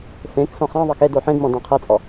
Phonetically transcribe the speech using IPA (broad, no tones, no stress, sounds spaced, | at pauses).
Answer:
f ẽ k s ɔ̃ χ ã ðˤ ɤ k e d o ħ ẽ d m ɔ̃ d ã qʰ ɤ t͡sʼ ɔ